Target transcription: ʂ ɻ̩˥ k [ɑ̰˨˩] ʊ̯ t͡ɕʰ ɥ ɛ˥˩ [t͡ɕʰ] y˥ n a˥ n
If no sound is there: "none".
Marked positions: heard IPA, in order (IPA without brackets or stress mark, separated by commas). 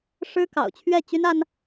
ɑ̰˨˩, t͡ɕ